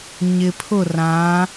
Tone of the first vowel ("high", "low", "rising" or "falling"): low